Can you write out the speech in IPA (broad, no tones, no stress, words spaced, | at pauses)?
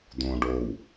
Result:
d̪õɖow